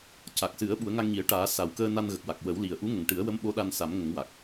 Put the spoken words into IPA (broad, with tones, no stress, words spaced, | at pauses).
ca˨˩k̚sɨ˨˩˦ə̯ ɓu˨˩˦ə̯ŋa˧ŋɲi˨˩˦ə̯ʈaː˨˩˦ sa˨˩wkəː˧ na˧nɣə˨˩k̚wa˨˩k̚ wə˨˩˦wli˨˩ə̯ ʔu˧˥ŋə˨˩ŋʈɨ˨˩˦ə̯wə˧˥m ɓo˧˥ɗa˧nsa˨˩˦m ŋə˨˩˦ŋwa˨˩k̚